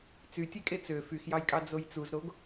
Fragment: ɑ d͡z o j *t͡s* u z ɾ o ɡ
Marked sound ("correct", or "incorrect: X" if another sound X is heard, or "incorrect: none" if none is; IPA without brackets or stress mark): correct